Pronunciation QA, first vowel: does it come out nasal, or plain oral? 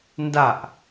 oral